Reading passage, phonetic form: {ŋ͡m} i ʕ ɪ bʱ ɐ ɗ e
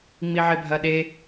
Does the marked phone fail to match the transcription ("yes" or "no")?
no